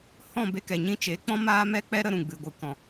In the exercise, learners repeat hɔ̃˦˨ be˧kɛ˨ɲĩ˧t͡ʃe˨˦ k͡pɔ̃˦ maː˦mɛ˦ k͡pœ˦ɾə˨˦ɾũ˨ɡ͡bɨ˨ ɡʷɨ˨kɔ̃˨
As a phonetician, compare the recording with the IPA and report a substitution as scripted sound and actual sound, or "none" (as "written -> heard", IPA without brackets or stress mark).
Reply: œ˦ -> ɛ˦